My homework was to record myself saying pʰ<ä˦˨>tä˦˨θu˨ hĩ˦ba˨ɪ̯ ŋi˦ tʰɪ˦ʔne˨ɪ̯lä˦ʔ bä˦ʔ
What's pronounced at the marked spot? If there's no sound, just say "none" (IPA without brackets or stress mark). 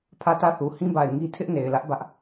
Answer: ä˦˨